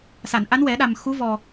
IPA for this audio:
s a˨˩˨ n ʔ a˧˥ n w ɛ˨˩˦ ɗ a˨˩ m x u˧˥ v ɔ˨˩

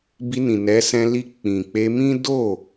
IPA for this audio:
b i˧ n ĩ˨ n ɛ˨˦ s ɛ̃˧ l i˧ k͡p ĩ˨ k͡p e˧ m ĩ˦ d o˦˨

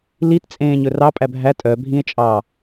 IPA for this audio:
l i t t͡sʼ ẽː ɲ ɵ r ɑ pʼ æ bʱ æ tʼ œ bʱ ĩ e̯ t͡ʃʼ ɑ

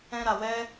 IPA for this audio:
ɛ̃˦ ɾ a˧ w ɛ˦

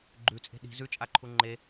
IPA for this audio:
ɡ͡ǃ ʉ t͡sʼ e̤ ɗ i̤ z ʉ t͡ʃʼ a ǃʰ u ŋ͡ǃ e

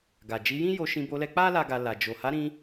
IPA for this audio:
ɡ a˨ d͡ʒ i˨˦ j ĩ˦ j o˧ ʃ ĩ˧ b o˧ l ɛ˧ k͡p a˦ l a˦ ɡ a˧ l a˨ d͡ʒ o˨ h a˨˦ ɾ ĩ˧

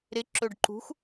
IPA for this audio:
ɾ ɪ ǁ ɵ ɖ ǃ ṳ x

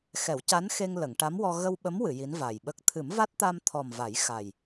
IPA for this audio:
x ɛ˨˩˦ w c a˧˥ n x e˧ ŋ l ə˨˩˨ ŋ ʈ a˧˥ m w ɔ˧ ɣ ə˧ w ɓ ə˧˥ m w ɨ˨˩˨ j i˧˥ n v a˨˩ j ɓ ə˦˥ k̚ t̪ʰ ɨ˨˩˦ m v a˦˥ t̚ t̪ a˧ m t̪ʰ ɔ˨˩ m v a˨˩˦ j x a˨˩ j

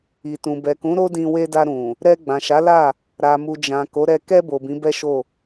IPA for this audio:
i˨ t ũ˨ b ɛ˨ k ũ˨˦ ɾ o˦ d ĩ˧ w e˧ d a˧ ɾ ũ˨ | ɾ ɛ˧ ɡ͡b ã˨ ʃ a˨˦ l a˦˨ | ɾ a˨ m u˨ d͡ʒ ã˨ k o˨˦ ɾ ɛ˧ k ɛ˧ b o˨ b ĩ˨˦ b ɛ˦ ʃ o˦˨

